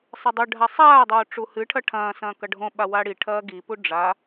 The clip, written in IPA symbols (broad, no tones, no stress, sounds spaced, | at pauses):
sˤ ɨ dˤ ʉ ɖʱ a sˤ aː dˤ oː ʈ͡ʂ u h ɨ ʈʰ ɐ ʈʰ ɐ̃ː s ɐ̃ː k ɐ ɖʱ õ ɓ a w a ɽ i ʈʰ ɐː ɡ i p u ɖ͡ʐ a